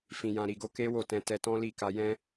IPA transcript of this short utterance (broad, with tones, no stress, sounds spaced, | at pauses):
f ĩ˨ j ã˨ ɾ i˨ ɡ o˧ k e˦ w o˦˨ t ɛ̃˧ t ɛ˧ t ɔ̃˦ l i˦˨ k a˧ j ɛ̃˦